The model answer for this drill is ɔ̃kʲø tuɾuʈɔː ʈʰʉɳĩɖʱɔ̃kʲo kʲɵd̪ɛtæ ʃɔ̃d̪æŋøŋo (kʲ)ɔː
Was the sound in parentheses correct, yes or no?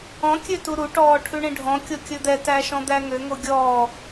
no